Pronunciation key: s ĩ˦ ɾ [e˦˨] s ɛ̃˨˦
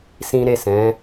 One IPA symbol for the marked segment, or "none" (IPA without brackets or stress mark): e˦˨